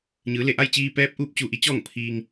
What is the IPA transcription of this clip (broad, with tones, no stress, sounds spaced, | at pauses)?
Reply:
ɲ ɯː˩˧ l e˧˩ ʔ a˥˨ j t͡ɕ iː˧ p ɛː˧˥ p̚ ʔ uː˧ p̚ t͡ɕ u˧ ʔ i˧˥ t͡ɕ ɔː˥˨ ŋ pʰ iː˧ ŋ